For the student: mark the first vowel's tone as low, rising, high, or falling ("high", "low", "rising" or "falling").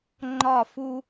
falling